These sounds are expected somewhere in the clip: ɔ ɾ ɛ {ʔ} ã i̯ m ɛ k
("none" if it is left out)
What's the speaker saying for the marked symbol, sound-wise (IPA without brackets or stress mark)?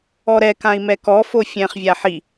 k